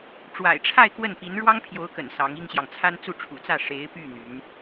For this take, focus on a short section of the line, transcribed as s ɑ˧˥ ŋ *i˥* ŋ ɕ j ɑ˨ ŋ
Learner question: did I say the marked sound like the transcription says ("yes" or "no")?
yes